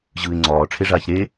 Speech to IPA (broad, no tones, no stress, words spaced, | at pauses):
ʑɯːɪ̯ŋ͡ǀɒː ʈ͡ʂʰeʐaːçɾe